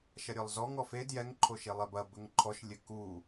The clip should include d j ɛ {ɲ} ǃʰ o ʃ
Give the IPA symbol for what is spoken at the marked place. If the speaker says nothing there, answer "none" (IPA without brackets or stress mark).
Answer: ŋ